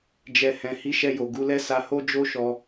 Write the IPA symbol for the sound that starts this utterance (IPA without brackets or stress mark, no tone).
d͡ʒ